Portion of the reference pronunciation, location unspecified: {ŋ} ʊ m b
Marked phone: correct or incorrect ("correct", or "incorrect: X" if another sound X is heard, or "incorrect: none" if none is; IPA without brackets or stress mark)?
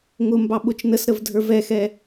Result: correct